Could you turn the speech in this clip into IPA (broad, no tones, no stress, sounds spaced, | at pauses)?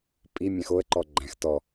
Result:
pʼ i mʲ æ̃ x o ə̯ ǃ ɔ ɡ͡ǃ æ̃ x t ɔ